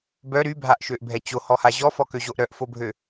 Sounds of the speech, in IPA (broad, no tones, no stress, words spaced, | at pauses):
bœ ɾybʱaʔʃøʔbʱɛ t͡ɕohɔha ʑɔfɔkøʑoʔ ɾœʔfobʱø